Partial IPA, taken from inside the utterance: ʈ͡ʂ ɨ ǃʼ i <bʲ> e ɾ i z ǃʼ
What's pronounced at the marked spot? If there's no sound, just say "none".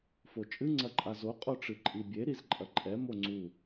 bʲ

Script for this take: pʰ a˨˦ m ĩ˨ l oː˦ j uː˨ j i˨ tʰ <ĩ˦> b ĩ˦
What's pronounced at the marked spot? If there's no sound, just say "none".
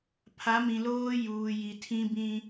ĩ˦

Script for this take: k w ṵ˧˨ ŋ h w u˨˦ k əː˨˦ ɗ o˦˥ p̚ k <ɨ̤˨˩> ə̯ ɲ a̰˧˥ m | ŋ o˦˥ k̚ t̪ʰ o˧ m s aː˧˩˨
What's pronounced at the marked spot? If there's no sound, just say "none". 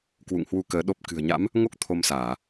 ɨ̤˨˩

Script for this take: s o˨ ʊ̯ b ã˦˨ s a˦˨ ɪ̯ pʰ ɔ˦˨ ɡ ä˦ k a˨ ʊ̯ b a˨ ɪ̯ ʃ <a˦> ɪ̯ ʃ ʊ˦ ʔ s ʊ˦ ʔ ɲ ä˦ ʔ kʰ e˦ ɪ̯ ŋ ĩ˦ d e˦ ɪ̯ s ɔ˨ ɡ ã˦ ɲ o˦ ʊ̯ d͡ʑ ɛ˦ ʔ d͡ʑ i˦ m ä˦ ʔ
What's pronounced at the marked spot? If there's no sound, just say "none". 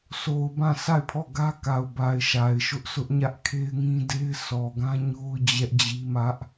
a˨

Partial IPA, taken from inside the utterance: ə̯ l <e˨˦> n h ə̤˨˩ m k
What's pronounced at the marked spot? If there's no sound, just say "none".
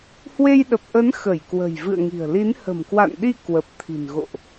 i˨˦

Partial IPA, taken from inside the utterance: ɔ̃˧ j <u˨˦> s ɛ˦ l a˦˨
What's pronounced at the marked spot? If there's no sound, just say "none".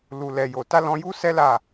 u˦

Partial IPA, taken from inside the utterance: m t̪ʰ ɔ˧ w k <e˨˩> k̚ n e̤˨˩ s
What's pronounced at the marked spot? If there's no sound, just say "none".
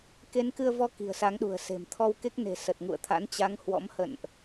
e˦˥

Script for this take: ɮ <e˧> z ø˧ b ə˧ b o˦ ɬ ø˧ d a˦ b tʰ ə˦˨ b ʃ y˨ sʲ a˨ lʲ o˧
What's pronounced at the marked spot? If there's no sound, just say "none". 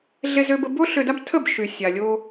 e˧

